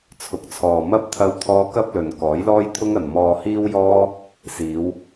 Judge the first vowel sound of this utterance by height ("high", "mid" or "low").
high